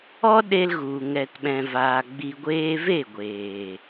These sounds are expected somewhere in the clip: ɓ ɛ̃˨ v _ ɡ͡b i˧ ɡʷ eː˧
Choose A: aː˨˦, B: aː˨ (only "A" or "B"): B